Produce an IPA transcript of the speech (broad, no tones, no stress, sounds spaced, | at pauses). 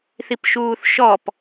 θ i p ʃ uː θ ʃ ɔ p